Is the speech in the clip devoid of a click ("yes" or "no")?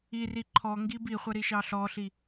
no